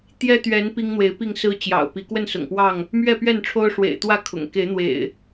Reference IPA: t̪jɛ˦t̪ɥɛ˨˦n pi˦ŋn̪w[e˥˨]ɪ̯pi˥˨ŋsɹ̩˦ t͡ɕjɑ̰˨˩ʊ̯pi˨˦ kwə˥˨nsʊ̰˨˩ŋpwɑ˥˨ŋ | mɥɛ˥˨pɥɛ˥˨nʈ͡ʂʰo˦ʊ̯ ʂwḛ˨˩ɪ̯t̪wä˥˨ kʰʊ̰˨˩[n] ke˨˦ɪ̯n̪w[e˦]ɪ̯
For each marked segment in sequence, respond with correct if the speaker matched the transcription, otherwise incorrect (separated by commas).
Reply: incorrect, incorrect, incorrect